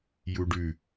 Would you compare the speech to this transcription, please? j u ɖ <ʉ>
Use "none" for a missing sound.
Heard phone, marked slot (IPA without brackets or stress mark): ʉ